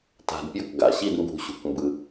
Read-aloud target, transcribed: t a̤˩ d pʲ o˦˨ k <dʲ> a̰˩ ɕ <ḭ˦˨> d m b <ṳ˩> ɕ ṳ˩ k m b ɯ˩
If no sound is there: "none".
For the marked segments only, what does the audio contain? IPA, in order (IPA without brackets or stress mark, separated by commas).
ɡ, i˦˨, ṳ˩